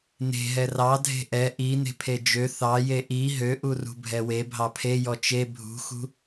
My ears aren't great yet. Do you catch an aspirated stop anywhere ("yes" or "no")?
yes